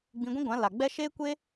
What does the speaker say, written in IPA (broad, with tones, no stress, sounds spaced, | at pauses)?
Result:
ɡ͡b ĩ˧ ɡʷ ĩ˦ ɡʷ ã˨˦ l a˨ ɡ͡b ɛ˦ ʃ eː˦ kʷ e˦